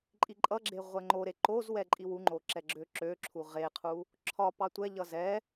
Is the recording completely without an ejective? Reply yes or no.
no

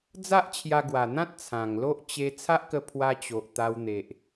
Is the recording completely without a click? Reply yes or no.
yes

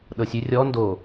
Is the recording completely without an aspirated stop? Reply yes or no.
yes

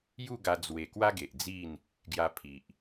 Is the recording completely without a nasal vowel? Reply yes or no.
yes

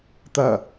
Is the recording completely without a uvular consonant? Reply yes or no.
yes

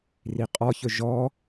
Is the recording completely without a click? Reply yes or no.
yes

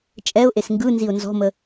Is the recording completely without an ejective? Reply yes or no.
no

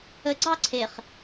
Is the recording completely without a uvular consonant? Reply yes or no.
no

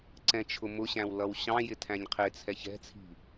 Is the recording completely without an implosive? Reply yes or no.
yes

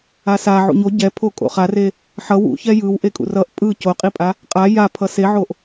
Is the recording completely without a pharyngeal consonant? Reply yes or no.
no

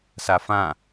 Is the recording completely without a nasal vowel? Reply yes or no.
no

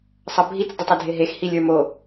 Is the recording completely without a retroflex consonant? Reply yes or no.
yes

